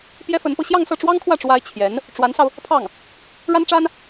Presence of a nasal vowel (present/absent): absent